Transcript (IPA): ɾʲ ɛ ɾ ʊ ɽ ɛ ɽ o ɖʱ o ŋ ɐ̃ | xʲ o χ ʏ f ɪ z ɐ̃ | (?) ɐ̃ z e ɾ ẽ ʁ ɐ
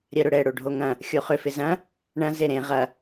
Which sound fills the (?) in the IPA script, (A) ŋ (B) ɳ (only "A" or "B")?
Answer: B